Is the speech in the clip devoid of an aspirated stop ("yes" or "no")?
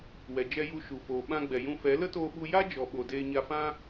yes